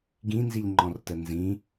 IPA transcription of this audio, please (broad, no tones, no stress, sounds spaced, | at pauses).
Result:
ɡ ĩ n z i ʎ ŋ͡ǃ ɔ̃ r t ə n z ĩ